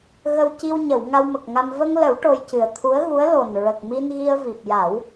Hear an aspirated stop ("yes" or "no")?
yes